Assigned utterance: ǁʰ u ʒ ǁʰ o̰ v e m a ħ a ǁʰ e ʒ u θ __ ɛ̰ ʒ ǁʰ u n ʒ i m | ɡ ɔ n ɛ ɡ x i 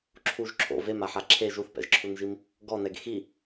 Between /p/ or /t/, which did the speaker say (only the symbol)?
p